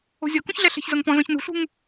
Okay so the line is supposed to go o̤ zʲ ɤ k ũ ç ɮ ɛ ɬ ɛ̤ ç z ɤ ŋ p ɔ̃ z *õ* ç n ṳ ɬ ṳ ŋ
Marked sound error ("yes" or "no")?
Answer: yes